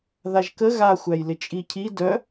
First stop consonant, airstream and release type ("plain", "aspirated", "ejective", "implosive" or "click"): plain